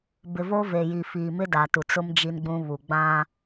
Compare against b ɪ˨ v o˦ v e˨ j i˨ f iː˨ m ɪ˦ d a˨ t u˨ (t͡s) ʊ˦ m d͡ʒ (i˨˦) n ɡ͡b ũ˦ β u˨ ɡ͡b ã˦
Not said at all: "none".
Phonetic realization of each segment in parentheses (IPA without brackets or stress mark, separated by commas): t͡s, i˦